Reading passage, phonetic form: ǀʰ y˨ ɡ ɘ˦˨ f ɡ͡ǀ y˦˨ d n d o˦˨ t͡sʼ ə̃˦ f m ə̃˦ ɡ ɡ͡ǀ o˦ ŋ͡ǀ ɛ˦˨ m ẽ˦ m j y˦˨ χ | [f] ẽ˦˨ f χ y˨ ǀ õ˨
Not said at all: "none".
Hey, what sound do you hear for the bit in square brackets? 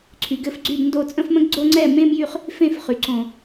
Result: f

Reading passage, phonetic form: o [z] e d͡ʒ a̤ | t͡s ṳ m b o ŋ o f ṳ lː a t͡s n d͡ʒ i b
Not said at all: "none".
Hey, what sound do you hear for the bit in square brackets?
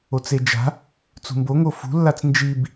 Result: t͡s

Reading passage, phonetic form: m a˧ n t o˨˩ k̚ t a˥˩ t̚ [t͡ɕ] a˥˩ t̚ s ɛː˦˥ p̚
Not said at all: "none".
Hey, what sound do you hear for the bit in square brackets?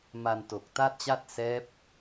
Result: t͡ɕ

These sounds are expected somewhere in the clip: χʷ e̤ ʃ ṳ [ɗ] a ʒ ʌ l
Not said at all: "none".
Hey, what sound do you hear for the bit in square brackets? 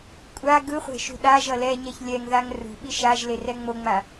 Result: ɗ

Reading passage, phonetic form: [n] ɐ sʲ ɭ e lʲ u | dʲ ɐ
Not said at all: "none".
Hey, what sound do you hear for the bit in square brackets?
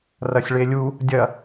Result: r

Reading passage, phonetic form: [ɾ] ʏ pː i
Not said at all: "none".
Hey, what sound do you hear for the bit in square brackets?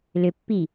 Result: l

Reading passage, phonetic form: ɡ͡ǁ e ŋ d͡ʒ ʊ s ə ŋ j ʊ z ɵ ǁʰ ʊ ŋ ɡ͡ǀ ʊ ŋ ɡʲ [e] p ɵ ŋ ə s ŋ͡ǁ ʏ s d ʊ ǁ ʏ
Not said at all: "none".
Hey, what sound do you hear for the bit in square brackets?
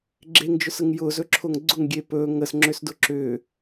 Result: e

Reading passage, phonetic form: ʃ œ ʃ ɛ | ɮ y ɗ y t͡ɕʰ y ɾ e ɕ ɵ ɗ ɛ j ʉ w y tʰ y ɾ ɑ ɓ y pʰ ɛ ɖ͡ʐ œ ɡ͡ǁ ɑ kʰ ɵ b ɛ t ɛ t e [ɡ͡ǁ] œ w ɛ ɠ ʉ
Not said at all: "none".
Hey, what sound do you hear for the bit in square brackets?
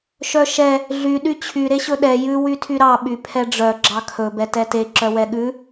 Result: ǁ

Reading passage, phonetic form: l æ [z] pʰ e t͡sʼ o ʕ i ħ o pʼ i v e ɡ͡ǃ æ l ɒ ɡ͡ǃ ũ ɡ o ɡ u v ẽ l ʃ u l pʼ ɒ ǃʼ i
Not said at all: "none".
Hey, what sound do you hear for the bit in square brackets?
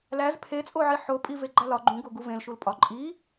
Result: z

